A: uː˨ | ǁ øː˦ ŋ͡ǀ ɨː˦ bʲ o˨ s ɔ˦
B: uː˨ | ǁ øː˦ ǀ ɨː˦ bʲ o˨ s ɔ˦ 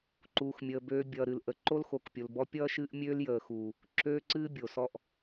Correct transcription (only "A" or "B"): B